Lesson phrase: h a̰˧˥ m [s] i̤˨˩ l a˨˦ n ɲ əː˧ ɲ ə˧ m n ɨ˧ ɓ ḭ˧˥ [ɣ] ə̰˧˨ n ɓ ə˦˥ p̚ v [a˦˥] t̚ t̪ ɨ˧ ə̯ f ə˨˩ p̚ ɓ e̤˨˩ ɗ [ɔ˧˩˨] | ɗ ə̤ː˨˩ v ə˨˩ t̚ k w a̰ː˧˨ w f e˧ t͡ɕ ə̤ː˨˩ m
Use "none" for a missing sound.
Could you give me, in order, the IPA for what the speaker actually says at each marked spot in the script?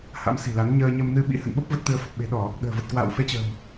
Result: s, h, ə˦˥, ɔ˧˩˨

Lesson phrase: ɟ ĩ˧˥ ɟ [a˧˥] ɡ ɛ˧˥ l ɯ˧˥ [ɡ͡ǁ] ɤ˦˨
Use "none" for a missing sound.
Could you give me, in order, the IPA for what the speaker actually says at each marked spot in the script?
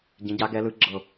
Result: a˧˥, ɡ͡ǁ

